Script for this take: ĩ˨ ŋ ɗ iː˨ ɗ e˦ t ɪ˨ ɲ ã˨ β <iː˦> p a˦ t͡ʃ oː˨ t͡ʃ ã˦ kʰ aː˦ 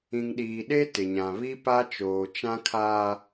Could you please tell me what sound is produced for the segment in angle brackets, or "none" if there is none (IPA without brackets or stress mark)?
i˦